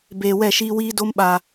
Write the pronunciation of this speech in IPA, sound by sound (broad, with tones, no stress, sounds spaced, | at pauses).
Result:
b eː˨ w ɛ˦˨ ʃ iː˦ w iː˦ d o˦ m ɓ a˨